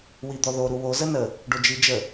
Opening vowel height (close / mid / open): close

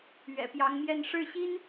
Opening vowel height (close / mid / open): mid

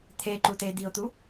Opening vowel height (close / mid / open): mid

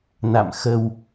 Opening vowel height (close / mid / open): open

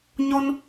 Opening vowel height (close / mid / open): mid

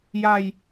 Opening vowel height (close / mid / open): open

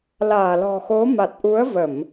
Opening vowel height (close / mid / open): open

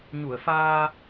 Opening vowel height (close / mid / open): close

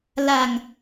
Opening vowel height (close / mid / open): open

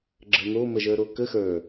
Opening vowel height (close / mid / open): mid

